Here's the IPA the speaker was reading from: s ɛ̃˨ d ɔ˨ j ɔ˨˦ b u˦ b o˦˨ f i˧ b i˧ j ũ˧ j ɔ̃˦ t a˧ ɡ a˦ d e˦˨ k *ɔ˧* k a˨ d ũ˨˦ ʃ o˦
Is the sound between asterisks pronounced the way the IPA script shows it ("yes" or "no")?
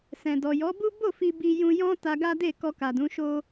yes